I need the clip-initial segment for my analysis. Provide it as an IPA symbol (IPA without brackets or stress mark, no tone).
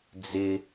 d͡z